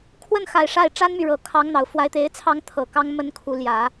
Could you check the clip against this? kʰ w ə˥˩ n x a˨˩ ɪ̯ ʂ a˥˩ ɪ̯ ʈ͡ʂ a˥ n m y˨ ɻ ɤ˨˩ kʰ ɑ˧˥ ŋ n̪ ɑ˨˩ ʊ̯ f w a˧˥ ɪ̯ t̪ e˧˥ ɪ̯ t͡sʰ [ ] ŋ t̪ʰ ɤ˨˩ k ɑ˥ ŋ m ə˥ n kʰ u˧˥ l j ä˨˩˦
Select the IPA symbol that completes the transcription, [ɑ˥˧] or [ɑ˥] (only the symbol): ɑ˥